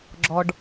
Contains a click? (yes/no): yes